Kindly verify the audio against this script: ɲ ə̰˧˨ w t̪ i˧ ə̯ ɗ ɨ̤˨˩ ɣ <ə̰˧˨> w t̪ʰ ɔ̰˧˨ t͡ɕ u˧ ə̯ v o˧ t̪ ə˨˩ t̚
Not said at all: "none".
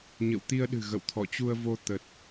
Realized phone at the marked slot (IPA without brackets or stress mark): ə̰˧˨